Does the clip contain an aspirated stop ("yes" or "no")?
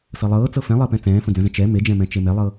no